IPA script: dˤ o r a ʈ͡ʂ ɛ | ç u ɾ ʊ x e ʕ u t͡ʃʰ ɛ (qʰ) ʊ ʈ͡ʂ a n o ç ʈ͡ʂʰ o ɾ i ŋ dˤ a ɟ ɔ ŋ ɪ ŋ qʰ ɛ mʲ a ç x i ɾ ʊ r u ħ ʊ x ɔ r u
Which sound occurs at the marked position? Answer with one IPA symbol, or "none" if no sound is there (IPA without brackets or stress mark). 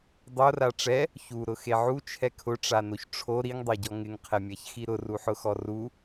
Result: kʰ